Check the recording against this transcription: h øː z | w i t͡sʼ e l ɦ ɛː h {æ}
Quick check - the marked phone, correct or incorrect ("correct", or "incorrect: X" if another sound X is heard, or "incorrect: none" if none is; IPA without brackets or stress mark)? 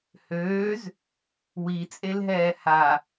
incorrect: a